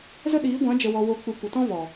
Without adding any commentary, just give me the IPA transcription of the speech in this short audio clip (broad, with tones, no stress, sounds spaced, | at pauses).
z ə˦ ɗ iː˨˦ ɡʷ ã˨˦ d͡ʒ ə˨ w ɔ˨ w oː˨ k͡p u˨ kʷ ə˨ t ɔ̃˦ v ɔ˨